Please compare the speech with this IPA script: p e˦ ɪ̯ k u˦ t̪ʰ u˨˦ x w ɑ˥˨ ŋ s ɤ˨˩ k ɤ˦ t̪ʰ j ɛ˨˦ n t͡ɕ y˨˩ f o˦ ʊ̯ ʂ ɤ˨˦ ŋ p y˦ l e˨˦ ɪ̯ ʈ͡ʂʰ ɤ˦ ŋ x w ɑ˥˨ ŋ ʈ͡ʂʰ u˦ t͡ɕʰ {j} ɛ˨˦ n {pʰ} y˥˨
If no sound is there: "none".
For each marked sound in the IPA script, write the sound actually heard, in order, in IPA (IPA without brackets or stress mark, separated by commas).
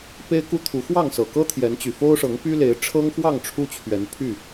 ɥ, pʰ